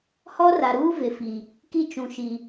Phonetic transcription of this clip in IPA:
hɔ˦ra˨ɾuː˦ vɪ˨fi˨ | ki˦t͡ʃũ˨ʃi˨

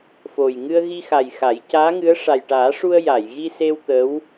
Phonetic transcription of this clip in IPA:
fo˨˩j ŋɨ˧ə̯ɣi˧xa˨˩j xa˨˩˦j caː˧˥ŋɨ˧˥ə̯ ʂa˨˩jʈaː˨˩˦ʂu˧ə̯ ja˨˩˨jɣi˧se˧w t̪ə˧˥w

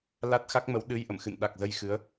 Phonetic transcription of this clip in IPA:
la˦˥t̚xa˦˥k̚mə˨˦w ɗɨ˧j ʔə̰˧˨mxɨ̰˧˨n ɗa˨˩k̚zə˧jxɨ˨˦ə̯

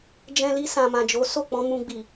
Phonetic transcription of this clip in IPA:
d͡ʒɛ̃˧li˧ sã˨mã˨ d͡ʒo˨˦so˦˨k͡pɔ̃˧ mũ˧ɡ͡bi˨

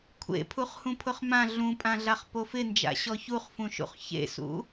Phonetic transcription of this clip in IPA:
kʷʰḛ pʰuχhũpʰʊχmã ɮũpʼãɮaχ pofɪnd͡ʒa̰ ɕɔçuχfũʃṵχ çḛsṵ

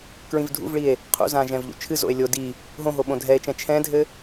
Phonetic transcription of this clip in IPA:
kɹĩvdʱṵvɭie̯ | qʰṵzã ʒɛ̃vʎṵt͡ʃʰɨzo̰e̯ lʲo di | ɦõɦo ɓõdʱɛe̯t͡ʃɛ̃ t͡ʃʰɛ̃dʱɘ

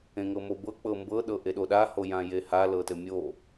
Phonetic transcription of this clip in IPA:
ẽŋɤmobɤ k͡pɤmbɤ ɗɤʔeɗoɗa hojãjeha lɤtɘmʲo

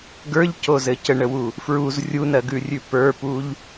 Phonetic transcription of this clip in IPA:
ɡə˞ʎcozɘ cəɳəwu | fɹuz rʲunɜɡʉrʲʉ pə˞puʎ

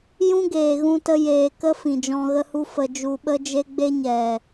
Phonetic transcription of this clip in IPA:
jũ˦ɡeː˨ɣũ˧tə˧ jeː˨kə˦ fĩ˨d͡ʒɔ̃˧ɣə˦hu˦ fə˧ d͡ʒu˧ɓə˦d͡ʒe˦ ɡ͡be˦ɲɛ˨

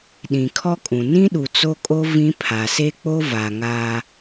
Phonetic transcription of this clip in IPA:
ɗĩ˨kʰɔ˦kʼũ˨ nĩ˦ɗu˨ t͡so˦kʼo˦ vĩ˦pʰa˨ se˦k͡po˦ va˨ŋa˦

